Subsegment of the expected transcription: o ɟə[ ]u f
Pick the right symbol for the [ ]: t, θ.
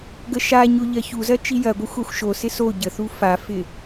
θ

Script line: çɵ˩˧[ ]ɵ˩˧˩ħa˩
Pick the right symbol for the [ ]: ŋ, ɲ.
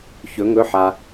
ŋ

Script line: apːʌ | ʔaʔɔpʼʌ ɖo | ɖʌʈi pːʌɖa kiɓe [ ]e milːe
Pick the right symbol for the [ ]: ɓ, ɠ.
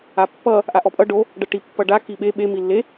ɓ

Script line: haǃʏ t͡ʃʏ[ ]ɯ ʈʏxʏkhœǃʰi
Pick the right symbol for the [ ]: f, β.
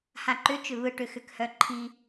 β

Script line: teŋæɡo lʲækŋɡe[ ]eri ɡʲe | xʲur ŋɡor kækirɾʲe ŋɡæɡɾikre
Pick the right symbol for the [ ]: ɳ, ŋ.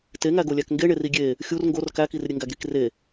ɳ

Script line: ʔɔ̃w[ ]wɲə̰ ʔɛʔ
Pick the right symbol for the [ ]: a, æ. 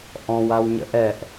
a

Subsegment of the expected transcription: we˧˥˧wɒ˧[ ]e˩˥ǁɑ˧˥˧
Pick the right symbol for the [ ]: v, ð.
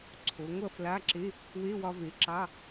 v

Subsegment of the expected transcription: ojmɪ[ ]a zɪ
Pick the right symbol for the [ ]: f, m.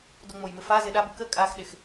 f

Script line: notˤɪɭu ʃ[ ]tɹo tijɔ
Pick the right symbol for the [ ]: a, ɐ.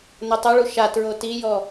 a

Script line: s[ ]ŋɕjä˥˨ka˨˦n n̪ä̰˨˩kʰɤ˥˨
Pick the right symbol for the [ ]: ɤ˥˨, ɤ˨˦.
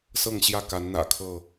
ɤ˥˨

